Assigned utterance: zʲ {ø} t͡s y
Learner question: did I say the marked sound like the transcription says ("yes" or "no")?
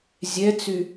no